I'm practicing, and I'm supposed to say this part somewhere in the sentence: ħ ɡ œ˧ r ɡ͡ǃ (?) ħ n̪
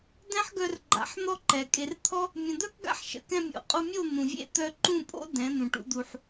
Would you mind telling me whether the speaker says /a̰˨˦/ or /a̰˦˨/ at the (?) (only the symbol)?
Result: a̰˨˦